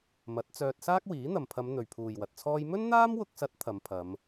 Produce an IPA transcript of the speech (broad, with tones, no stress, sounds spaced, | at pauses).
m ɐ˨˥ t̚ t͡s œː˧ t̚ s aː˥ k̚ w iː˨˥ n̪ ɐ˨ m pʰ ɐ˨˧ m n̪ ɵ˨ ɥ pʰ uː˨ j w ɐ˨ t̚ t͡sʰ ɔː˥ j m ɵ˥ n n̪ aː˥ m w ʊ˧ k̚ s ɐ˨˥ t̚ t̪ʰ ɐ˨˧ m pʰ ɐ˨˧ m